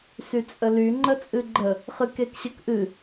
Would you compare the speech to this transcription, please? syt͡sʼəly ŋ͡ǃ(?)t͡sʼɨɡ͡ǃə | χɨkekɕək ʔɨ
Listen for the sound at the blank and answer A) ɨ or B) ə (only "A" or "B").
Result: B